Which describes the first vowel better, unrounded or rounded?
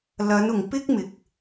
unrounded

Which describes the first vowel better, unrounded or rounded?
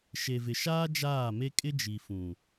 unrounded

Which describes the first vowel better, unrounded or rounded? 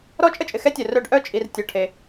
rounded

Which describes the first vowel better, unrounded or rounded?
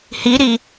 unrounded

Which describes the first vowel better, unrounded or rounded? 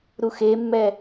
rounded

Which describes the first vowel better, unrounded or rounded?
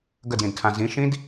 unrounded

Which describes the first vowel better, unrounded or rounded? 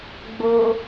rounded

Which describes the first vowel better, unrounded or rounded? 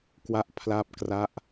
unrounded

